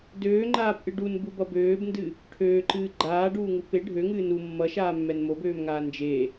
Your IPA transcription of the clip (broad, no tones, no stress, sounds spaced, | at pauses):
d øː ŋ͡ǃ aː p ʔ ɨ ɖ u n b u b ʌ b øː b n d ɨ | ʈʰ øː ǃ ɨː ɡ͡ǃ aː ɖ uː ŋ u p e ɖʱ ø ŋ ɨː n u mː ʌ ʃ aː mː ɛ n m o b øː m ŋ aː n d͡ʒ e